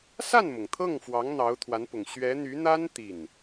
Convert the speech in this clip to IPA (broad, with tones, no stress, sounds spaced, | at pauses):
s a˥˩ n m ʊ˩ ŋ t̪ʰ ɤ˥˩ ŋ f w ɑ˧˥ ŋ n̪ ɑ˧˥ ʊ̯ t̪ʰ w a˧˥ n p ʊ˨˩ ŋ ɕ ɥ ɛ˧˥ n̪ y˧˥ n̪ a˥ n t̪ i˥˩ n